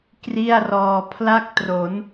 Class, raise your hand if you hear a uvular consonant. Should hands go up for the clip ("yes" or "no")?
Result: no